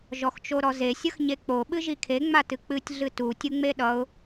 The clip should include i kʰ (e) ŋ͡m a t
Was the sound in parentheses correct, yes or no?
yes